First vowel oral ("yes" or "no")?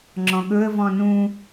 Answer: no